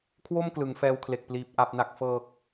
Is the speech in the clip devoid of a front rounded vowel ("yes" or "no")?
yes